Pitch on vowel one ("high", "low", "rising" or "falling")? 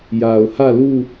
low